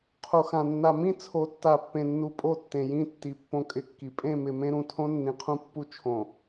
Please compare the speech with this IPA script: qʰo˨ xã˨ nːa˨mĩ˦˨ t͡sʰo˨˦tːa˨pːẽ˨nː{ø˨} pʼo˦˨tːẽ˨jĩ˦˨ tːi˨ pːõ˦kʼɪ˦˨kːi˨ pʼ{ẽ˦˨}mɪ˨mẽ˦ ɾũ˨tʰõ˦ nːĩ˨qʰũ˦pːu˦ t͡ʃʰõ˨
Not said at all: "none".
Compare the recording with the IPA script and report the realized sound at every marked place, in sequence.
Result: u˨, ẽ˦˨

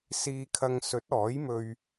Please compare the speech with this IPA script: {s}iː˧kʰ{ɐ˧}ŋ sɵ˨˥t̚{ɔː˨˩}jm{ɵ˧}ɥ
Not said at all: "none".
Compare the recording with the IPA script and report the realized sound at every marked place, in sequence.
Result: s, ɐ˧, ɔː˨˥, ɵ˧

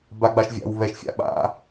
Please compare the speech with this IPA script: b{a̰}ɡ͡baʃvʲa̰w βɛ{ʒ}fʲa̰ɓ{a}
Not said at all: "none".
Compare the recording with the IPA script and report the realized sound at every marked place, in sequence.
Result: a, ʃ, a̰

